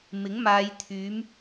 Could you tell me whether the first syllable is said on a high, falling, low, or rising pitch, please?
rising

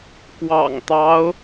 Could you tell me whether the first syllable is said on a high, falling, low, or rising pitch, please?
low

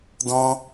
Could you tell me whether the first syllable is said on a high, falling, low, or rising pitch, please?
high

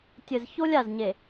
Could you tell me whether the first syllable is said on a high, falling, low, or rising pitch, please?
low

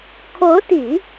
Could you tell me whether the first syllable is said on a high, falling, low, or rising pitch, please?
rising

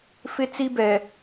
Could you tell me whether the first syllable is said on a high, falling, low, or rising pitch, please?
high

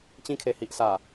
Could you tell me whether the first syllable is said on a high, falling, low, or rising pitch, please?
high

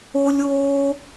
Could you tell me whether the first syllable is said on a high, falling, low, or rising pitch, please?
high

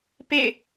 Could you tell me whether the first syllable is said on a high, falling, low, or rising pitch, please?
falling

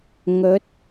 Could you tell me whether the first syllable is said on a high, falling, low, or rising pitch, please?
rising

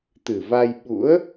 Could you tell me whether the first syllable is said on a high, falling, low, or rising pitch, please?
low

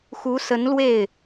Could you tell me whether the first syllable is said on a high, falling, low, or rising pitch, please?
rising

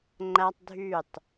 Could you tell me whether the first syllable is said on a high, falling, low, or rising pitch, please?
high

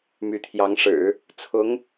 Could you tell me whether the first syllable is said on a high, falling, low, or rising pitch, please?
rising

